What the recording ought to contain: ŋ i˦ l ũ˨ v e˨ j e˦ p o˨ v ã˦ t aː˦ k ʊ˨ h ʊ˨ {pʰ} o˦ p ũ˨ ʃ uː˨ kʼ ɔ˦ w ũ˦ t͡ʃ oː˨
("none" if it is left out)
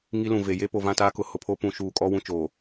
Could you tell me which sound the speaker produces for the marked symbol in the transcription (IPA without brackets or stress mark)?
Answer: pʰ